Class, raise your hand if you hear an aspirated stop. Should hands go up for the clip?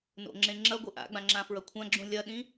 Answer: yes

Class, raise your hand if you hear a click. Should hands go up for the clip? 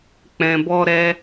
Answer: no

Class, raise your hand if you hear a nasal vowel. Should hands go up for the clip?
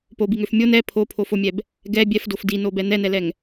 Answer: no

